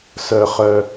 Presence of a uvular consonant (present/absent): present